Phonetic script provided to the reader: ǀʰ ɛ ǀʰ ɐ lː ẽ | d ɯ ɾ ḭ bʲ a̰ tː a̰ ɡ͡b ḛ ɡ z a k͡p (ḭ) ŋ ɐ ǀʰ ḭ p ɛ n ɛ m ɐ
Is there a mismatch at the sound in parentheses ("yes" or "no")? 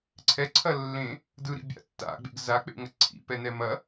yes